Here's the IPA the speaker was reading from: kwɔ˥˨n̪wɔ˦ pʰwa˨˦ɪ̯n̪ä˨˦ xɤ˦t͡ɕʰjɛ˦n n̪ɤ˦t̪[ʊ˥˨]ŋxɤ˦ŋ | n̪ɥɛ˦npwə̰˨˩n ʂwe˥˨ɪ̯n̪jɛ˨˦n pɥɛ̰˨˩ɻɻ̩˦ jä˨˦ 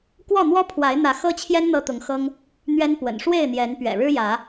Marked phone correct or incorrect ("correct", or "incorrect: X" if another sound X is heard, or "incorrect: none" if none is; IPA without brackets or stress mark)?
incorrect: ʊ˨˦